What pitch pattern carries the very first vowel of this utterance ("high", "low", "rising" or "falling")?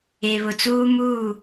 low